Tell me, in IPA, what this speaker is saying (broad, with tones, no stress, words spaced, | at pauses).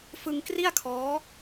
fɯ˧ŋkri˥˩a̯kʰɔː˦˥